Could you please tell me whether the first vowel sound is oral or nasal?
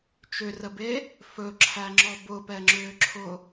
oral